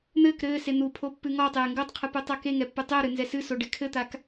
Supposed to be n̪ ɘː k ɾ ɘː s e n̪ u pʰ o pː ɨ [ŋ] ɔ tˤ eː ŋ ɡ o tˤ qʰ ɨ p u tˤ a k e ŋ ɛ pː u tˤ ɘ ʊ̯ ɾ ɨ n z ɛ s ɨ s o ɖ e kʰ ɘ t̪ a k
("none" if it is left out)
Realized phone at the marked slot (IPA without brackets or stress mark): ŋ